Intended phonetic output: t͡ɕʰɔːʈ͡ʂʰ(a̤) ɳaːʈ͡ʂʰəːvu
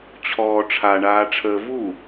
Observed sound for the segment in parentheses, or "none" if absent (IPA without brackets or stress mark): a